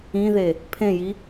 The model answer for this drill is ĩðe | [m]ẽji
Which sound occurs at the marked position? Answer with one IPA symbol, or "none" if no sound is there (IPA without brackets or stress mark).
pʰ